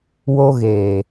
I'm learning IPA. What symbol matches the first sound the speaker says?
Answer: w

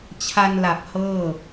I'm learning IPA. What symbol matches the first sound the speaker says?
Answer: t͡ɕʰ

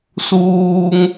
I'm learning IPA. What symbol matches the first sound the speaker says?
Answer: s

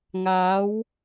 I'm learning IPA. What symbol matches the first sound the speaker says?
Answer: ŋ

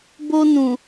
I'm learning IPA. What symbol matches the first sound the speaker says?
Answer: b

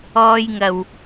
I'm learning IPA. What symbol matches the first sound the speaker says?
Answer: ɔː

